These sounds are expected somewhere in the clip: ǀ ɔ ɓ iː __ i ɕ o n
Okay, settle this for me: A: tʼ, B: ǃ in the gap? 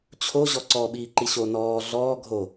B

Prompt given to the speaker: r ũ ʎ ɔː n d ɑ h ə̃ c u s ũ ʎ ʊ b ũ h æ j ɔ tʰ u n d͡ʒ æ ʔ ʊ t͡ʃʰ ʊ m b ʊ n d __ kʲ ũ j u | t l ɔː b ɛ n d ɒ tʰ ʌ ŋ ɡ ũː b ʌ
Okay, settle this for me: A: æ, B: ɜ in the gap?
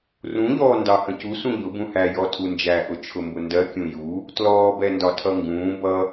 B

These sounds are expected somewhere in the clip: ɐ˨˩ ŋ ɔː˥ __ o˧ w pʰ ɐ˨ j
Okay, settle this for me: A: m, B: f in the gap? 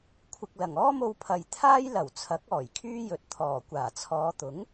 A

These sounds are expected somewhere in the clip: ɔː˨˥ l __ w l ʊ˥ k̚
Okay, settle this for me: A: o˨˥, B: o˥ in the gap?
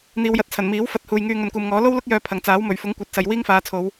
B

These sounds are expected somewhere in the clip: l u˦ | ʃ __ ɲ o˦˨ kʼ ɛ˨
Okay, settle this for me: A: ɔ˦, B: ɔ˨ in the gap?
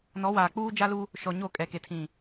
B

